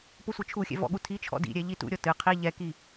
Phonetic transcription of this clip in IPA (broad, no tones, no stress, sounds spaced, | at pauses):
p o sʷ ɨ t͡ʃʰ u xʲ ɛ̰ v ɔ̰ ɠ u tʰ i t͡ʃʰ ɔ̰ d ḭ ɾʲ ɛ ʎ i t ṵ ɾʲ ɔ t ɨ qʰ i ʎ ɛ k i